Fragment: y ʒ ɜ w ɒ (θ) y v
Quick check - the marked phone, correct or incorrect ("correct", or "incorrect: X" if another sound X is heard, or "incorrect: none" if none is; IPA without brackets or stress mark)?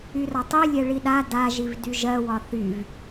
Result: correct